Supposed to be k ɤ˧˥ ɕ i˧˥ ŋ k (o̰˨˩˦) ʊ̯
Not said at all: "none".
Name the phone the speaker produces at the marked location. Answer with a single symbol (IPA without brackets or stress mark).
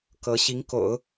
o̰˨˩˦